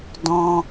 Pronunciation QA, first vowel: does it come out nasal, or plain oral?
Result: nasal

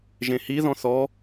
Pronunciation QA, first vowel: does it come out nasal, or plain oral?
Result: nasal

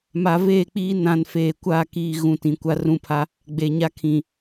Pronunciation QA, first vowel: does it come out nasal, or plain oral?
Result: oral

